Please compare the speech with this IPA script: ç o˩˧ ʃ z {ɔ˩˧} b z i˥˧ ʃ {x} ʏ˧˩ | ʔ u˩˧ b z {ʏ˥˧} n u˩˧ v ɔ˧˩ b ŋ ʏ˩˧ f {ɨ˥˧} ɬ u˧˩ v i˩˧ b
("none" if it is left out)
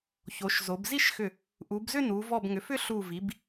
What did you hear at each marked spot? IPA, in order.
o˩˧, x, ʏ˥˧, ʏ˥˧

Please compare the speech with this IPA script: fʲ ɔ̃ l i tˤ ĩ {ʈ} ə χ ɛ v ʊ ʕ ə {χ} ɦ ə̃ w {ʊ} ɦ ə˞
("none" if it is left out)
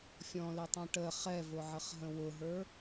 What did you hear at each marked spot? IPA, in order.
ʈ, χ, ʊ

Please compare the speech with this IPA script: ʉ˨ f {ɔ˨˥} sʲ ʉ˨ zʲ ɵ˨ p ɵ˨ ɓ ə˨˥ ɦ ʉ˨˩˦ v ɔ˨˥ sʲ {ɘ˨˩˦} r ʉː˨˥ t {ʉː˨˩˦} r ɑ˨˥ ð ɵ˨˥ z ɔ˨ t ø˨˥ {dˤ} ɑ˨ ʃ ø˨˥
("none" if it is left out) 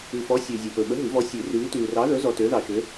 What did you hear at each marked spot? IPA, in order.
ɔ˨˥, ʉ˨˩˦, ʉː˨, ð

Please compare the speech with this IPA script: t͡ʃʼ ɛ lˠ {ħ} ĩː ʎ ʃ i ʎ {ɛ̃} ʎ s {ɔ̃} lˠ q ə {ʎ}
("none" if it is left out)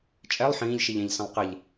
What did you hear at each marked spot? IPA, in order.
ħ, ɛ̃, ə̃, ʎ

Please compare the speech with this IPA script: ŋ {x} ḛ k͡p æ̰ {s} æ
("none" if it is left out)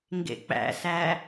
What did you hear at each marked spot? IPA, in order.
ɡ, s

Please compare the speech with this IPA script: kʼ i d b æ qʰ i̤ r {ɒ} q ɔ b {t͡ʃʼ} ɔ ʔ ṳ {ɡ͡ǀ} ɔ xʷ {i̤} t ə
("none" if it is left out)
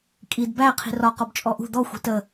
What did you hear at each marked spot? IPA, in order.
ɒ, t͡ʃʼ, d̪, i̤

